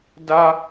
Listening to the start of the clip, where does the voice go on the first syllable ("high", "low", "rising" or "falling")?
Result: high